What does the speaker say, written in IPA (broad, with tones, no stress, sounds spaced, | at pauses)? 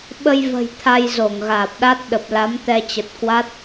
ɓ ə˧ j v ə̤˨˩ j t̪ʰ a˧ j z o˧˩ ŋ ɣ aː˨˩ p̚ ɗ a˦˥ t̚ ɗ ə˨˩ p̚ l a˨˦ m t̪ ɛ˧ t͡ɕ ə˨˩ t̚ k w a˦˥ t̚